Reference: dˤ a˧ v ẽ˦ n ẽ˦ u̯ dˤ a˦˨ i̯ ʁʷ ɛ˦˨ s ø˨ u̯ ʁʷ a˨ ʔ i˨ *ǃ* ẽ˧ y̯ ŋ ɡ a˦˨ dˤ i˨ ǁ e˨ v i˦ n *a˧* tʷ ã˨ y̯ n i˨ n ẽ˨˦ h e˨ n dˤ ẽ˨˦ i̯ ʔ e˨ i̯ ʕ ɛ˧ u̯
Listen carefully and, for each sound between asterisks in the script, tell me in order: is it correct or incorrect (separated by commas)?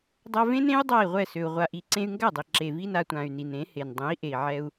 incorrect, correct